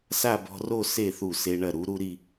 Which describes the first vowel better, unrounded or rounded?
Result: unrounded